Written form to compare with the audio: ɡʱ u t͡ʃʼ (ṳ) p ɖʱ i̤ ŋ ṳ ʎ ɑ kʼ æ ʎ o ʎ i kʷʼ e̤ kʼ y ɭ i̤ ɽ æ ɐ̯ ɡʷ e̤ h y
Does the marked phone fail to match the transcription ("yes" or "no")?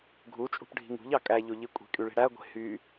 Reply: no